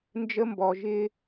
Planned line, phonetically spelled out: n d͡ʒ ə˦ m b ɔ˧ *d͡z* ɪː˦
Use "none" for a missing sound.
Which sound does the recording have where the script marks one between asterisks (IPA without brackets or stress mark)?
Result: ʒ